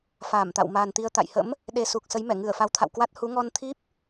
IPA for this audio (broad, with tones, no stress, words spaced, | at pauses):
faː˧˩mt̪a̰˧˨wma˨˩nt̪i˧ə̯ t̪a̰˧˨jhə̰˧˥m | ɗe˨˩su˨˩k̚ sə˨˦jmɛ˧˩ ŋɨ˧˩ə̯ fa˨˦wt̪ʰa̰˧˨wkwa˦˥t̚ hu˨˦ŋɔ˧nt̪ʰi˦˥p̚